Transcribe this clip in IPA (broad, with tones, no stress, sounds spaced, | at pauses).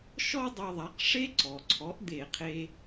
ʃ ɔ˥ dˤ ɛ˧ ðˤ a˩˥ q ʂ e˥ ǀ ɔ˩ ǀʰ ɔ˩˥ ʔ d̪ e˧˩˧ qʰ e˧